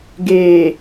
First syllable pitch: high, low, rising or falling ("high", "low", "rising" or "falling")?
low